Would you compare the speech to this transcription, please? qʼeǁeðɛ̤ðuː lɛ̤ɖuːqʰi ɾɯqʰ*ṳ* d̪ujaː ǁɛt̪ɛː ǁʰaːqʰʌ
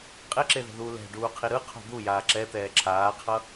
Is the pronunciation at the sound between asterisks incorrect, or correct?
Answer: correct